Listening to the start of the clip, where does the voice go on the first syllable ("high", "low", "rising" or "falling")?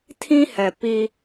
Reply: high